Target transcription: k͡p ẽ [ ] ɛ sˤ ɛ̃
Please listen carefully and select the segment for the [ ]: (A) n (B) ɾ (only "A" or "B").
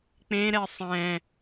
B